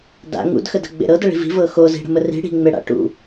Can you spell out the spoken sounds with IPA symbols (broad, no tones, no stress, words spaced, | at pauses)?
da̰ ŋṵdxədə̤ɡ͡bḛ ɾɤdəɭi̤ vi̤vɤ xozi̤ɽə̤mə ri̤ ɽi̤ŋ͡meɽa̰ ʈṵ